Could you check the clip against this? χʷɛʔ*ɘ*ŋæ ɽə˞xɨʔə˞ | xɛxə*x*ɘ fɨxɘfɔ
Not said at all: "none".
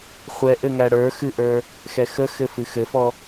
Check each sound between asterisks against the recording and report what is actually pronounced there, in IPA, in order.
ɘ, x

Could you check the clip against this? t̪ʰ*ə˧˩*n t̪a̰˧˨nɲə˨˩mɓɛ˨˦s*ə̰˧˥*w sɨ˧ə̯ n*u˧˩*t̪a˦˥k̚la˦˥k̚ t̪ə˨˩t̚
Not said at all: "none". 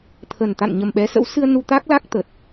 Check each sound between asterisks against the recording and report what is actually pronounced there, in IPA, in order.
ə˨˩, ə̰˧˥, u˧

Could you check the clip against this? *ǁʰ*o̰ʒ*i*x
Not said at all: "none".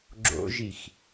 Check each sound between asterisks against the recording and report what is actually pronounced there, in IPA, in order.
ɡ͡ǁ, i

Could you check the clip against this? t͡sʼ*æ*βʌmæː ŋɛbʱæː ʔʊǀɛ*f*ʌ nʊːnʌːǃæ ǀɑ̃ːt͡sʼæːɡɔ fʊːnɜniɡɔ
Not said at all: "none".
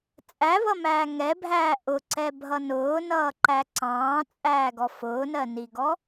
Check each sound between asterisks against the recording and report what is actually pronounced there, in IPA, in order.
æ, bʱ

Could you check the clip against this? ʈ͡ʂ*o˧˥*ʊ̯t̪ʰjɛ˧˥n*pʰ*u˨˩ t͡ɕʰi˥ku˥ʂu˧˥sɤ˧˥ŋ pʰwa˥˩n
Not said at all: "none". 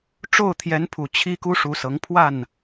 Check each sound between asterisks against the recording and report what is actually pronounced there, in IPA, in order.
o˥˩, pʰ

